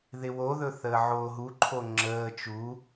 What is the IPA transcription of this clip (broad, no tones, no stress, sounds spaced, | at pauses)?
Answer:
ð ɪ w o ð ɵ θ əː ʕ oː ɦ u ǃʰ o ŋ͡ǁ əː t͡ʃ u